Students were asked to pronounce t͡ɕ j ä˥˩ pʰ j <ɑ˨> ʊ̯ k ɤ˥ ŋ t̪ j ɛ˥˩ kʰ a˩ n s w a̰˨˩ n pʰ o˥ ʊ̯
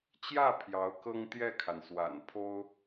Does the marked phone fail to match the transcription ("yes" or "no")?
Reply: yes